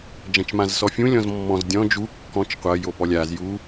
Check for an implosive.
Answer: absent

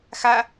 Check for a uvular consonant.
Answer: absent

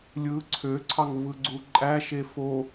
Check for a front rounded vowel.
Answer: present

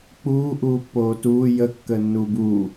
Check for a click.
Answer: absent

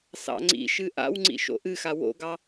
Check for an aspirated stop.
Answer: absent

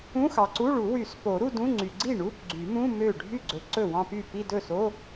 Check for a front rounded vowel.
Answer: present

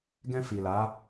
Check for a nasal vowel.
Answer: present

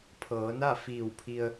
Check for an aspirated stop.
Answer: present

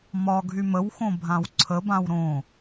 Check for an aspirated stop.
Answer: present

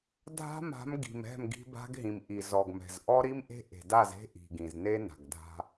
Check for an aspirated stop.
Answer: absent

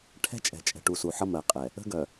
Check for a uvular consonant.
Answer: present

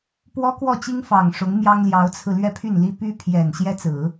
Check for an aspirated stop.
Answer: present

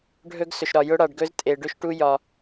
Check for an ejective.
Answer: present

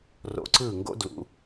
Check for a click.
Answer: present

